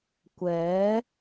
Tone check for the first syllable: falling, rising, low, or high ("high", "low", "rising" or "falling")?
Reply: rising